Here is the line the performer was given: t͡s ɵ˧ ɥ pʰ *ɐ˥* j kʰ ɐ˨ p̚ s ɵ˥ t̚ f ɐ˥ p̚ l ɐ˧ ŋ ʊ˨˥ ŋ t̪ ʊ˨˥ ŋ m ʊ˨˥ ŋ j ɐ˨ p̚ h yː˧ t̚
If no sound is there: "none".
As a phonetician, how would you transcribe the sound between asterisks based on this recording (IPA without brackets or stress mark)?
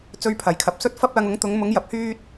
ɐ˨˩